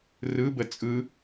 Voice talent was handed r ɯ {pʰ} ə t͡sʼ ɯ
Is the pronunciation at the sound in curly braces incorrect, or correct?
incorrect